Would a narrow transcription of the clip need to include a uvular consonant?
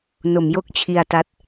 no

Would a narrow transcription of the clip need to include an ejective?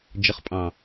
yes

